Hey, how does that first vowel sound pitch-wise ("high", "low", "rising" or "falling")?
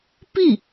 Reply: falling